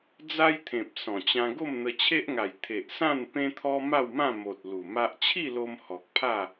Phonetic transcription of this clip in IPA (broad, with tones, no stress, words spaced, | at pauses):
d͡za˦jt̪ʰẽ˨p̚ sɔ̃˨˩t͡ɕã˧ ɡo˥˧mn̪ə˧t͡ɕʰe˦ʔŋa˨˩j t̪ʰe˨ʔsã˥˧n pẽ˦t̪ʰɔ˦ ma˥˧wmã˥˧ mo˨t̚ lu˨˩ma˦ʔ t͡ɕʰi˥˧lo˧m hɔ˨k̚pʰa˥˧